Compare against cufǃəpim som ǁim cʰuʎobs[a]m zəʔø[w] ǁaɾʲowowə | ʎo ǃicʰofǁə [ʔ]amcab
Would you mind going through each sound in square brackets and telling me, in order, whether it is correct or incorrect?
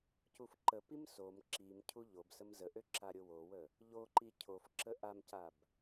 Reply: incorrect: ə, incorrect: none, correct

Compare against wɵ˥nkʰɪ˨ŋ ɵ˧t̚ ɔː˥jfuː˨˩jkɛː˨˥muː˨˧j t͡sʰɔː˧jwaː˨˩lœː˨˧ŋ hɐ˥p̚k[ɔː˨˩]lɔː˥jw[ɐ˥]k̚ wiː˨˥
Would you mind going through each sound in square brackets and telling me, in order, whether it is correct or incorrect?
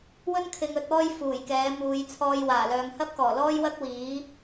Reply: correct, correct

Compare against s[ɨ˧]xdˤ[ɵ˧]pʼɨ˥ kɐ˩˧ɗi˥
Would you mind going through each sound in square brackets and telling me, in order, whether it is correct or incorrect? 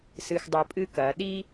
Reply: correct, correct

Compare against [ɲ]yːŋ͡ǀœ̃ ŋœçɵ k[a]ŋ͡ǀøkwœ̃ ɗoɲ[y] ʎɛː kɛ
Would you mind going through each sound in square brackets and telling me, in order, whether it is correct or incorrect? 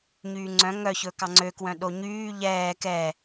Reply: correct, incorrect: ɑ, incorrect: yː

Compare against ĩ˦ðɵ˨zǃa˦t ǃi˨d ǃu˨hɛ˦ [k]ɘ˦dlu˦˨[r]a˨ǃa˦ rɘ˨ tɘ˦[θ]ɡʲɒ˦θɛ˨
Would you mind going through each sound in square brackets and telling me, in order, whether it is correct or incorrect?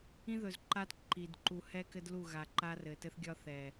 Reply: correct, incorrect: ɣ, correct

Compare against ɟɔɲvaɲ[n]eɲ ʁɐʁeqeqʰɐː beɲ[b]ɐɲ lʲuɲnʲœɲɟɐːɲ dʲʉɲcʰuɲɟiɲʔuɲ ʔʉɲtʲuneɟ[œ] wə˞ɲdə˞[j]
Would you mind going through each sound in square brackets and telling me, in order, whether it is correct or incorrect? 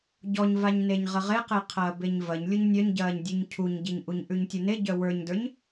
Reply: correct, incorrect: v, correct, incorrect: ɲ

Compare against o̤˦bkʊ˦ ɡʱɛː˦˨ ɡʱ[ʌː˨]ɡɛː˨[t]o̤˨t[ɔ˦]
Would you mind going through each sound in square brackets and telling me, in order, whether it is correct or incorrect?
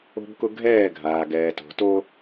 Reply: incorrect: aː˨, correct, incorrect: o˦

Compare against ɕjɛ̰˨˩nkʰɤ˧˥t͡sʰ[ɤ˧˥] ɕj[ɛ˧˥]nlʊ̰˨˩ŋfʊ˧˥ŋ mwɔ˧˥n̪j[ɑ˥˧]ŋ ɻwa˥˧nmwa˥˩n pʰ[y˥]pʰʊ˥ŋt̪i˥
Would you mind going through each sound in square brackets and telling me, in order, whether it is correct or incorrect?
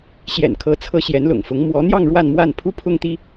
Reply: correct, correct, correct, incorrect: u˥

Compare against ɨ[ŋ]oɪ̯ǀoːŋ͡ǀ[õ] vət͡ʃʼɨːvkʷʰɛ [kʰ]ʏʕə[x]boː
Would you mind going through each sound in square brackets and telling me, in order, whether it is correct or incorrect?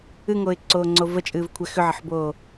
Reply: correct, incorrect: o, incorrect: x, incorrect: ħ

